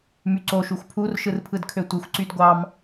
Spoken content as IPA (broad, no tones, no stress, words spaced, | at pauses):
myǀo ʃuxʷpʰur ʃɯrpʰɯdkʰøtʷɯxʷ ǀydɡʷɑm